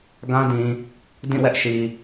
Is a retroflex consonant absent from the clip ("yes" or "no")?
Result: yes